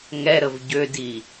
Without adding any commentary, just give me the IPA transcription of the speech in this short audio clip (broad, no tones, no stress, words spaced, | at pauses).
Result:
ŋɛɾəv ɟødi